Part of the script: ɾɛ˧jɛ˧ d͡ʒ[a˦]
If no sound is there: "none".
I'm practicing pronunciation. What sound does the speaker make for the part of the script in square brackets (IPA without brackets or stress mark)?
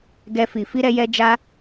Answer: a˧